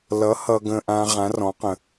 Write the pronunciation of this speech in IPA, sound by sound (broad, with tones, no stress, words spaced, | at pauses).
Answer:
lʌ˨˥ hʌ˨ɡə̃˨ʔã˨ ʁã˨˥rɔ̃˨˥qə̃˨